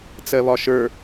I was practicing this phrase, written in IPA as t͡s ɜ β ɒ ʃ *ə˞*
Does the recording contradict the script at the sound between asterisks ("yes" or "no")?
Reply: no